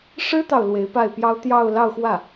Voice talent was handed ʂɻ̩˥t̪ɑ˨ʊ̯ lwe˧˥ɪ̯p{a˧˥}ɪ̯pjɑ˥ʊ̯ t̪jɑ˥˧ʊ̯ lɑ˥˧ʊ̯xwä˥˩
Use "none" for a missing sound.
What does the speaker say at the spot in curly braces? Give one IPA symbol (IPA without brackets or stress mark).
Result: a˥˩